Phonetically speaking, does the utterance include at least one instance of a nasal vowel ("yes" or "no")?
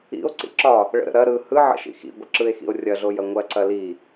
no